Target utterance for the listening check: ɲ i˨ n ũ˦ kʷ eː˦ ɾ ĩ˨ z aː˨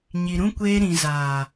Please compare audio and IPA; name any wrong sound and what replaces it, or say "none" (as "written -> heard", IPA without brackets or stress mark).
n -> ɾ